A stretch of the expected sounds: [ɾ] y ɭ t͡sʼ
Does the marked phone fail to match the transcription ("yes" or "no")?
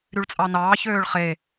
no